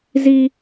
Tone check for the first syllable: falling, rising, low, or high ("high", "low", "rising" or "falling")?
high